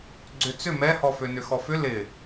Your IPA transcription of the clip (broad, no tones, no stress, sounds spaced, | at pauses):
ɡ͡ǀ ʏ t͡s ʏ m ɛ h ɔ f ø n ʏ x ɔ f ʏ l ɪ